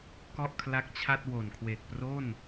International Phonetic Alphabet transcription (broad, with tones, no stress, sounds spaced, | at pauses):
k ɔ˥˩ ʔ kʰ l a˦˥ k̚ t͡ɕʰ a˥˩ t̚ w o˨˩ n kʰ w eː˨˩ k̚ p r o˥˩ n